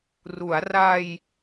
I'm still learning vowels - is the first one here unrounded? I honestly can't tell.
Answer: no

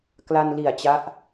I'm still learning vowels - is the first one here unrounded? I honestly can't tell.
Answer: yes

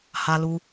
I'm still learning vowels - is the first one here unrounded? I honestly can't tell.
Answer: yes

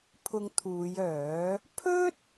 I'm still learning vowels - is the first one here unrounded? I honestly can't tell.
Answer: no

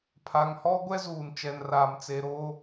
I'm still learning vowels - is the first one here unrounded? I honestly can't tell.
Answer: yes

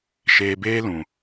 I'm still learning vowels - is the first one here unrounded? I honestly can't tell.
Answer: yes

